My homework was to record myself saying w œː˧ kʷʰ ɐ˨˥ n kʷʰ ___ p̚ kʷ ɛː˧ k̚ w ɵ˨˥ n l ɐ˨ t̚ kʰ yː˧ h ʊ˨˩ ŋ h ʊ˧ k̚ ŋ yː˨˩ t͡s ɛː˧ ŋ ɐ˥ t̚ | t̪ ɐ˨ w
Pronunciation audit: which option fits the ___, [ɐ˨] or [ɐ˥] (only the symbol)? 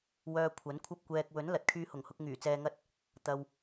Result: ɐ˥